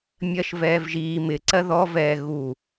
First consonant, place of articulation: labial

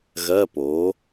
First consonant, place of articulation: velar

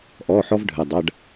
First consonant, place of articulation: glottal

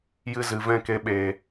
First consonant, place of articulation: palatal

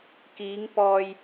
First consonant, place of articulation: velar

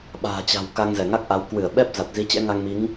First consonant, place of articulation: labial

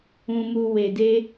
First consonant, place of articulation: labial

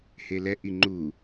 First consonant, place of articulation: glottal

